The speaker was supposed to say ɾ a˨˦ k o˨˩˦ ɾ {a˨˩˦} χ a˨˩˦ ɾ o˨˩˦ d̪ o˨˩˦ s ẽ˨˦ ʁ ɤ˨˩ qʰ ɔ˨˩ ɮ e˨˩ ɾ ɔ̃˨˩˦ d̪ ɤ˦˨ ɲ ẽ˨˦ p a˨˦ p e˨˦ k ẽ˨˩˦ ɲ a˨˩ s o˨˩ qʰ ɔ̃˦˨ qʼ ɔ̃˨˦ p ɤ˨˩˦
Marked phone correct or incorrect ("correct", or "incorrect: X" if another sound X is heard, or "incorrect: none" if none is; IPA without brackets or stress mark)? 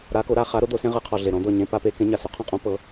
incorrect: a˦˨